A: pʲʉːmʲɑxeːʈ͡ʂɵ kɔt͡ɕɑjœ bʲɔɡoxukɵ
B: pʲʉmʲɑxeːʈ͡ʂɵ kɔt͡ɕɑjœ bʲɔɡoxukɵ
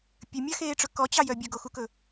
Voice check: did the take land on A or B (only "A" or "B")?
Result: B